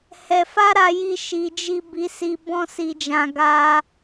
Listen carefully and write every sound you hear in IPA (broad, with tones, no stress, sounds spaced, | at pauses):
h ɛ˧ f a˦ ɾ a˧ j i˧ ʃ i˨ d͡ʒ i˧ b i˧ s i˧ b ɔ̃˦ s i˧ d͡ʒ ã˧ ɡ a˧